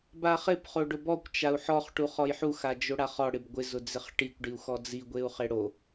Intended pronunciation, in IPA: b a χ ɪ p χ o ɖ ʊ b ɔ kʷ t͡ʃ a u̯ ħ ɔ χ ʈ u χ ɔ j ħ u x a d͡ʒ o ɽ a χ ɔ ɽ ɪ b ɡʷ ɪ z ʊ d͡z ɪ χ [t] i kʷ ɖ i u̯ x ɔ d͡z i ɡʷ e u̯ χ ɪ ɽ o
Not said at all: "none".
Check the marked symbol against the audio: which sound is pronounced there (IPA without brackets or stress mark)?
ʈ